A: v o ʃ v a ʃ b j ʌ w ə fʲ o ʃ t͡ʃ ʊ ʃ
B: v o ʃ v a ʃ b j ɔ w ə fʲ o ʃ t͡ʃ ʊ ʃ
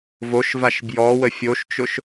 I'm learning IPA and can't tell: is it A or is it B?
B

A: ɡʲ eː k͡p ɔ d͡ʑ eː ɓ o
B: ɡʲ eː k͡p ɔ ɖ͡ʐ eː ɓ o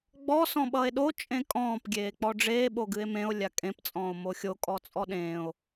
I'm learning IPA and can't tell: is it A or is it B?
B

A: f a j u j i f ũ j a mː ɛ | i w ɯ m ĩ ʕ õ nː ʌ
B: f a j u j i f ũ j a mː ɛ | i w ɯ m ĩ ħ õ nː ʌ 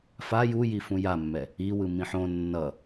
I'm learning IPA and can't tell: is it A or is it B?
B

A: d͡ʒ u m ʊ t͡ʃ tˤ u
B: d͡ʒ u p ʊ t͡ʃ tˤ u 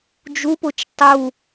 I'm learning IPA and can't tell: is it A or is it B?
B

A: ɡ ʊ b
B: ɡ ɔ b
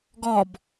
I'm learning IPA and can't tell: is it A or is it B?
B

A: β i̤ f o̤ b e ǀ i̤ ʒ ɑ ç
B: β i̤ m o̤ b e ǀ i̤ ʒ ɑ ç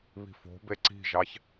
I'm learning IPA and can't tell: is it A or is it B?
A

